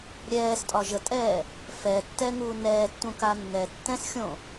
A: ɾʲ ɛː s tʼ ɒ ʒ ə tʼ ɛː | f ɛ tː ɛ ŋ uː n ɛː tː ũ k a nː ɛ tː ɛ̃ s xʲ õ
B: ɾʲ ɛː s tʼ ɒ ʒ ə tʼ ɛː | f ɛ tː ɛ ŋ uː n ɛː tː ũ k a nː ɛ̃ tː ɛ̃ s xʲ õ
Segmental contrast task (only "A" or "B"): A